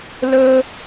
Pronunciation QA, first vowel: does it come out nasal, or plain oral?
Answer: oral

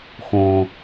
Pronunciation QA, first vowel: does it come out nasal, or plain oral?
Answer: nasal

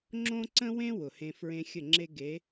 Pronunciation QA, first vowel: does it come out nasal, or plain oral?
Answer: nasal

